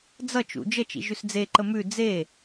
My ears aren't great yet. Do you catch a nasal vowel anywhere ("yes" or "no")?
no